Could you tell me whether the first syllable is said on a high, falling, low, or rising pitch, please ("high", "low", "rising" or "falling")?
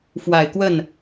low